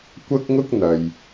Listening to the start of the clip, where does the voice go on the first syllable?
high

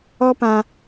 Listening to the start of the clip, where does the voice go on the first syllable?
high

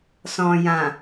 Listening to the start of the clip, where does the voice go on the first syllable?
low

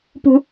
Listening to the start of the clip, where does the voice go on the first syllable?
low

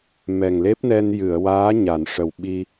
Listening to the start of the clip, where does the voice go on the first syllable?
low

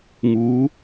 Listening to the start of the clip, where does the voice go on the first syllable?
rising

